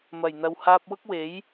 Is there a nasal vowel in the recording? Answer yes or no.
no